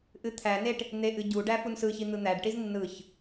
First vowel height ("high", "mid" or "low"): high